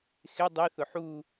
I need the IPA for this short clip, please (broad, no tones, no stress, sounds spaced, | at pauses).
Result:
x ɪ dˤ i θ ʊ ħ u